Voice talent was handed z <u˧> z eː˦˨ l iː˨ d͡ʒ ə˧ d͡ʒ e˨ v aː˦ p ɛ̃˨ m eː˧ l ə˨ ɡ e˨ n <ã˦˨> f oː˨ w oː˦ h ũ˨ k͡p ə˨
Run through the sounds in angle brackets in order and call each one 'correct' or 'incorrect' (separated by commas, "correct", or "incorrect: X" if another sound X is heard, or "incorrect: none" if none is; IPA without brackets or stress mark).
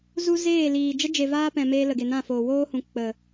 incorrect: u˦, correct